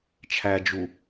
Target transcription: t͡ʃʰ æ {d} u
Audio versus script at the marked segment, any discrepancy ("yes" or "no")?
yes